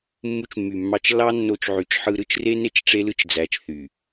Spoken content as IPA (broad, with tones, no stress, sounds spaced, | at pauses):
mː u˧ t͡ʃ mː y˨ mː ɑ˧ t͡ʃ lː ɑ˦ nː o˧ t͡ʃ ʕ y˨ t͡ʃ ħ ɯ˧ ɾ ɯ˦ t͡ʃ r e˦ n e˦ t͡ʃ ʈ͡ʂ e˦ l ɯ˦ t͡ʃ d͡z æ˨˦ t͡ʃ θ y˨